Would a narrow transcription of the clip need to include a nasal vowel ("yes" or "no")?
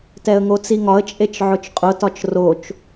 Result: no